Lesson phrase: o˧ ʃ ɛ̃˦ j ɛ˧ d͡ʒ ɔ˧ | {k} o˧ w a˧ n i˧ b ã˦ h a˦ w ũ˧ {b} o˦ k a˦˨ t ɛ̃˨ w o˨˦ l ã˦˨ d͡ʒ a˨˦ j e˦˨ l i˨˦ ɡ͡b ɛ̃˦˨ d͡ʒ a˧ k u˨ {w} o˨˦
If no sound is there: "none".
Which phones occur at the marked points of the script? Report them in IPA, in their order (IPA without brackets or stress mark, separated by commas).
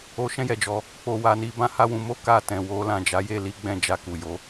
k͡p, m, j